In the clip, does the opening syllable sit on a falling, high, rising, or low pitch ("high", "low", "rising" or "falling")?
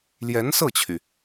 rising